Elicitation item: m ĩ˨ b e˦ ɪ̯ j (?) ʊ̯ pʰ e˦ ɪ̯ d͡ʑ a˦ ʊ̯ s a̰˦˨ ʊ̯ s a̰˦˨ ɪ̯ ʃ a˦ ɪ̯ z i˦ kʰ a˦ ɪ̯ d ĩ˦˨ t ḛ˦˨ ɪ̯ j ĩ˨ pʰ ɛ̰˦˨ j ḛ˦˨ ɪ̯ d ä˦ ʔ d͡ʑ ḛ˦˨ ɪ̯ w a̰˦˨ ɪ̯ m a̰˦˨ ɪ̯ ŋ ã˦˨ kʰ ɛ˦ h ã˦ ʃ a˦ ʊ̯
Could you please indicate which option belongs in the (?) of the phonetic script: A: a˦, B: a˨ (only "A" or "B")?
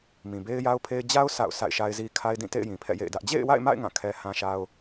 A